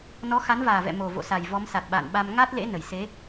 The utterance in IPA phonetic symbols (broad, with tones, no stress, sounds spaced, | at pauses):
n ɔ˨˦ x a˨˦ n v aː˨˩ v ɛ̰˧˨ m o˨˩ v o̰˧˨ s a˨˩ j v ɔ˨˦ m s a˨˩ t̚ ɓ a̰ː˧˨ n ɓ a˧ m ŋ a˦˥ t̚ l ḛ˧˥ n ə˧˩ j s e˨˦